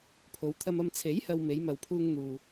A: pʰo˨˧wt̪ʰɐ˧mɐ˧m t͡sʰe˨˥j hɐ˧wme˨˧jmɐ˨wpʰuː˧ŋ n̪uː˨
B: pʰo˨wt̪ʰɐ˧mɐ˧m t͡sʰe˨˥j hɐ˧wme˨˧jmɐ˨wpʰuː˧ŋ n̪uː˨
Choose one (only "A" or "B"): A